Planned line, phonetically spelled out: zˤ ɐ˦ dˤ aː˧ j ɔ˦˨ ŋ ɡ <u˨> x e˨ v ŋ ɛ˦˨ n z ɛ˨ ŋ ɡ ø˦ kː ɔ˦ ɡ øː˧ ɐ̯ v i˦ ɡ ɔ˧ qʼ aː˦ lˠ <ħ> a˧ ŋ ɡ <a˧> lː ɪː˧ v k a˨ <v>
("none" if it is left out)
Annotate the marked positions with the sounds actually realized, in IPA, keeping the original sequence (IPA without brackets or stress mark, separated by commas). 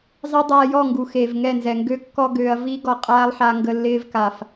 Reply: u˨, ħ, ə˧, f